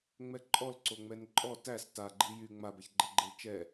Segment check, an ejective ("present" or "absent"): present